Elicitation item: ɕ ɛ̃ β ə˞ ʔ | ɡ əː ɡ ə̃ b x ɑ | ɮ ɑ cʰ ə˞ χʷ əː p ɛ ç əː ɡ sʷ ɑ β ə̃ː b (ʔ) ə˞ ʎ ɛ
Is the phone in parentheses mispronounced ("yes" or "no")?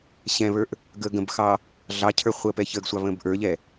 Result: no